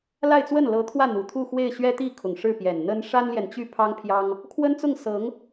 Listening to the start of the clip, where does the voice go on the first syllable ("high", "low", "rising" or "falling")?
falling